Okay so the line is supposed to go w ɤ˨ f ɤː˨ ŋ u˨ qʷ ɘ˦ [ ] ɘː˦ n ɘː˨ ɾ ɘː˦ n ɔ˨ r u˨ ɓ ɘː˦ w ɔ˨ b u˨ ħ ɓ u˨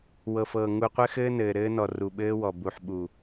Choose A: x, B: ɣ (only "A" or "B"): A